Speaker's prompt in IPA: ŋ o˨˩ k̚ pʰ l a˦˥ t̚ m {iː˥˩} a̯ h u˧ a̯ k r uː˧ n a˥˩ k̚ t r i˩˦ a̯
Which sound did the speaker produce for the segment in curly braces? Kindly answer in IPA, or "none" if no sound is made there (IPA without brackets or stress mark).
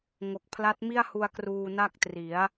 i˥˩